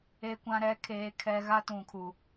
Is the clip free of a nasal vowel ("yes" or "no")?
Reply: no